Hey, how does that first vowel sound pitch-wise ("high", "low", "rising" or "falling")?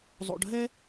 low